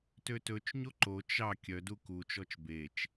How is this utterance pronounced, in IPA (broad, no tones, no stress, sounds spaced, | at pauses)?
t ø t ɵ t͡ʃ ɲ o ǃ o t͡ʃ ɑ kʲ œ d u k u t͡ʃ ɔ t͡ʃ b e t͡ʃ